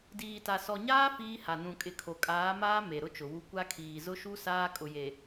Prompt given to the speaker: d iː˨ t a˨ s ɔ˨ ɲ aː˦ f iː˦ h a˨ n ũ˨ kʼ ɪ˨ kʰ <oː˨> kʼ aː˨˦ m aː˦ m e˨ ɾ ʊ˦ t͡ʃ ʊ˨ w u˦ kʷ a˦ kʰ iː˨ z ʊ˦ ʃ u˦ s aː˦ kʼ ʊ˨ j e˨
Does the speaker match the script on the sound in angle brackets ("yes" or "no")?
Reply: no